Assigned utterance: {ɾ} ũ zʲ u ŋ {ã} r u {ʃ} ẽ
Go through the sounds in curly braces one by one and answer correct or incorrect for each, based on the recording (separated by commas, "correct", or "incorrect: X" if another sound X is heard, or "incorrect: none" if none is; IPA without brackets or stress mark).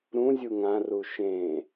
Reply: correct, correct, correct